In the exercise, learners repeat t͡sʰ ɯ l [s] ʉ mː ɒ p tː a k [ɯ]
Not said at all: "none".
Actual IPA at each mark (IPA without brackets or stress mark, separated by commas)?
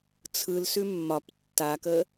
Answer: s, ə